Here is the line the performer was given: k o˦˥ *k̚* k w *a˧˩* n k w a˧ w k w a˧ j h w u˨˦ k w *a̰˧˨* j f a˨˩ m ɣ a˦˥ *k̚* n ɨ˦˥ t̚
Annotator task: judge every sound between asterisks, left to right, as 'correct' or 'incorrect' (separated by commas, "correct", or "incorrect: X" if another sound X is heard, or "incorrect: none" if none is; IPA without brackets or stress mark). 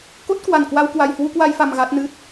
incorrect: t̚, correct, incorrect: a˧, incorrect: t̚